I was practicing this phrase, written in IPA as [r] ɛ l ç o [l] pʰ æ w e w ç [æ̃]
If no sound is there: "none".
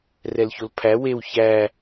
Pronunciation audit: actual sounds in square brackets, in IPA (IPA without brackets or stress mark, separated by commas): r, l, æ